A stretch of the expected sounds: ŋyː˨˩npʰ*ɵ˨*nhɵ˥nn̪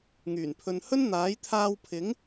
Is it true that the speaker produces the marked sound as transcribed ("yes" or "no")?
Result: yes